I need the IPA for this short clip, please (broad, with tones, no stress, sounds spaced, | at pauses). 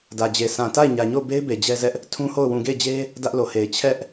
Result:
d ä˨ d͡ʑ e˨ sʰ ã˨ t a˦˨ ɪ̯ ɲ ä˨ ɲ o˦˨ ʊ̯ b e˦ ɪ̯ b e˨ d͡ʑ ɛ˦ z ɛ˦ ʔ | tʰ ũ˦ h o˦˨ ʊ̯ w ũ˨ ɡ e˦˨ ɪ̯ d͡ʑ e˦ | d ä˦ ʔ l o˨ h e˨ ɪ̯ t͡ɕʰ ɛ˦ ʔ